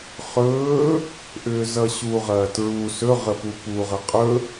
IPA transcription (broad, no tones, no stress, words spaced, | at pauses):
χɵː | ʔʏːzʌɕu ʁɐːtɹu sɵ ʁəpupu ʁɐqʼɵ